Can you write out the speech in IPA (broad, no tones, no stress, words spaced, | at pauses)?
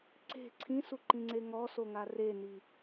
ǀe̤ ǀʰĩsuǃĩŋ͡ǀe ŋɔsoŋa reni